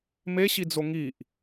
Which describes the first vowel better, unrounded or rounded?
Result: unrounded